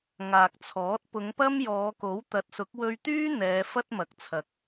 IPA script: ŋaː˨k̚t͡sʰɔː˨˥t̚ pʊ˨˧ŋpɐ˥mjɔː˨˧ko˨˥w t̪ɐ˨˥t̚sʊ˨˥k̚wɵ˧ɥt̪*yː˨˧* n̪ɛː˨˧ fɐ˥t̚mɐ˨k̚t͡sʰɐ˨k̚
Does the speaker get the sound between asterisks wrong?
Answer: yes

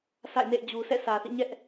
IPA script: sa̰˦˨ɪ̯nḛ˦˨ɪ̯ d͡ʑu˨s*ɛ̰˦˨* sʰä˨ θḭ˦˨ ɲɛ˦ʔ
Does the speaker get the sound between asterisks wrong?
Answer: no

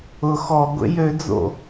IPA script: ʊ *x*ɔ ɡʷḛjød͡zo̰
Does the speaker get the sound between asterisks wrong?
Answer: no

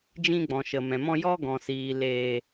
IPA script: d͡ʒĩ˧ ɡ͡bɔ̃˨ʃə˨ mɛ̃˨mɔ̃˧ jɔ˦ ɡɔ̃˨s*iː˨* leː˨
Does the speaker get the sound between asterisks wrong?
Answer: no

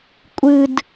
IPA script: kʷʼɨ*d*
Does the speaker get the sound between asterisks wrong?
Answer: no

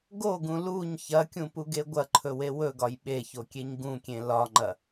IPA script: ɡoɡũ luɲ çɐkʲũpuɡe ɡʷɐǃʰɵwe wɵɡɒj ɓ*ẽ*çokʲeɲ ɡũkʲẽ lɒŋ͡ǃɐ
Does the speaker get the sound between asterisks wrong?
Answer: yes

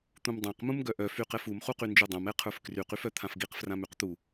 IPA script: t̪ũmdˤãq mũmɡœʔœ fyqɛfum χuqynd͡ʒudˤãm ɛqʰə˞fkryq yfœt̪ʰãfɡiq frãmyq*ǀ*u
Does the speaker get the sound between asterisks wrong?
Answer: yes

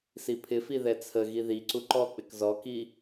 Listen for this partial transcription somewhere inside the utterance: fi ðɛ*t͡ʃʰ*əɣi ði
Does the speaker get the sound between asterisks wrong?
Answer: yes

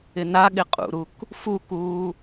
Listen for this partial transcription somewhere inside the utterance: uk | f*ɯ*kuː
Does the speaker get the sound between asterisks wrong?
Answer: yes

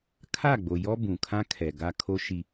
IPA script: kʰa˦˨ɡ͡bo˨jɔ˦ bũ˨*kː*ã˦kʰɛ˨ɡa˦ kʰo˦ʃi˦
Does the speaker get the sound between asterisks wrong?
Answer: yes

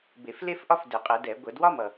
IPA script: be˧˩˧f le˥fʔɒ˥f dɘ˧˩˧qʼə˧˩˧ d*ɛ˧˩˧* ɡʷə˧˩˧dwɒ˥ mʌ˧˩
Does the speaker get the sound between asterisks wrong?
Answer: no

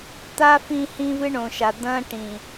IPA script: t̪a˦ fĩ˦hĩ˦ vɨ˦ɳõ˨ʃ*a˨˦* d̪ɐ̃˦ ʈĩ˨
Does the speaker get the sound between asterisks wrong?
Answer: yes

